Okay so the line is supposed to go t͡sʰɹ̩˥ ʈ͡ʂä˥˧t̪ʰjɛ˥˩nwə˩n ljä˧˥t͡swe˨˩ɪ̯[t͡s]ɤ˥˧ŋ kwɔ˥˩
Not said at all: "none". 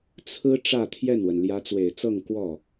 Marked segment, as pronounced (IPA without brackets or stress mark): t͡s